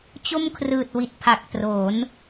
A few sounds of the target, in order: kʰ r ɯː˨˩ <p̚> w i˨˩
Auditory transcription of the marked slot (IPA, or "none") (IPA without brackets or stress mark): t̚